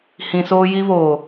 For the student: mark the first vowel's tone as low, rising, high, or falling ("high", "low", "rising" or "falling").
high